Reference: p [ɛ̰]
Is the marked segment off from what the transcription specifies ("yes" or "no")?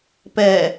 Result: yes